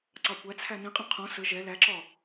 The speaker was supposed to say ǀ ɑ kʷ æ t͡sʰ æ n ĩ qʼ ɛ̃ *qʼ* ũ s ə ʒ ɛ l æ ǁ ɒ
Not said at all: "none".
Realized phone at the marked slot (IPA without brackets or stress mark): qʰ